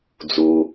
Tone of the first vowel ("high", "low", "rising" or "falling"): low